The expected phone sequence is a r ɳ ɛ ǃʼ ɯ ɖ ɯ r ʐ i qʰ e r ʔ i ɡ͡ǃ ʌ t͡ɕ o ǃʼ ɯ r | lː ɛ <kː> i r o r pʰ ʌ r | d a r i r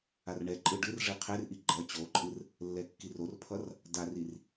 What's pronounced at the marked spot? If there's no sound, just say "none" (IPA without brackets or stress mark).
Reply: kː